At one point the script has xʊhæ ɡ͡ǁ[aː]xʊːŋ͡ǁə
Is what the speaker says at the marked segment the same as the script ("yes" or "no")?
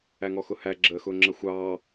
no